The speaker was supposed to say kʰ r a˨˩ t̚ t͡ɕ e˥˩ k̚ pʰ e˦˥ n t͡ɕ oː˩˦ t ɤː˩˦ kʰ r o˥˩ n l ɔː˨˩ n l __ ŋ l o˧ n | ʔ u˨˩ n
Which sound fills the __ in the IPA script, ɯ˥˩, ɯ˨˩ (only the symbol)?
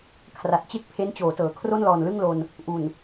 ɯ˥˩